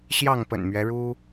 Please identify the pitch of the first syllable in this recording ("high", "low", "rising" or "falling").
falling